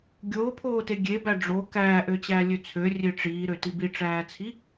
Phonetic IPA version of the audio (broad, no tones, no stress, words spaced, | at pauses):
ɡʲoːpʰoːte ɡʲebæ ɖ͡ʐo kæːʔøt͡ɕæːlʲø t͡sʰørʲe ʈ͡ʂiːɾøti biʈ͡ʂæːt͡sʰi